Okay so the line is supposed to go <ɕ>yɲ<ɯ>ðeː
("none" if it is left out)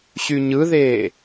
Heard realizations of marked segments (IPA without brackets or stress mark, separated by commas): ɕ, ɯ